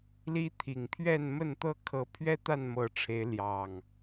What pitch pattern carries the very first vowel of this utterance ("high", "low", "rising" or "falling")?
high